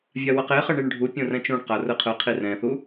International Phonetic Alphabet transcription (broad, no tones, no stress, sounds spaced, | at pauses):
vʲ a w ʌ q e χ ʌ ɳ i ɳ ɖʱ u pʲ õ r ɛ̃ t͡ʃ ũ ɳ q a r ɯ qʰ ɯ qʰ i r ɛ̃ θ u